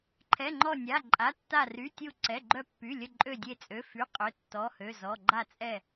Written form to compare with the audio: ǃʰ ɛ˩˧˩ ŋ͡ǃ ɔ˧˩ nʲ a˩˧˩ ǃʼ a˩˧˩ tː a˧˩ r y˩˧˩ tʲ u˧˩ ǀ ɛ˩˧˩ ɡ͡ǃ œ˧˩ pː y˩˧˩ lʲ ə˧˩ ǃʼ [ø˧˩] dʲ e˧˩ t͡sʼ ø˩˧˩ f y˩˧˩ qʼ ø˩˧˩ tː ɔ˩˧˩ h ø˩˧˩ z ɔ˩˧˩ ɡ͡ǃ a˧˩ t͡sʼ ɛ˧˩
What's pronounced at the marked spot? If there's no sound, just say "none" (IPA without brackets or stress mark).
ø˧˩